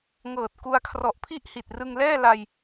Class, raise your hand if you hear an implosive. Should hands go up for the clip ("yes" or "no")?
no